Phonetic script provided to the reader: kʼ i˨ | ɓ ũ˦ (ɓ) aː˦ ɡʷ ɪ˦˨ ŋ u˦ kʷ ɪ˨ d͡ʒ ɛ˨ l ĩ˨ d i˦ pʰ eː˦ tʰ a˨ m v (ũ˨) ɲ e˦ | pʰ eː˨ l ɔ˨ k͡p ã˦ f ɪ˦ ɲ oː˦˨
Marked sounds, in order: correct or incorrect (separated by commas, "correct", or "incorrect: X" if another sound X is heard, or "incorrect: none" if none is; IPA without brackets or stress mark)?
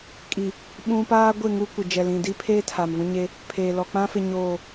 incorrect: p, incorrect: ũ˦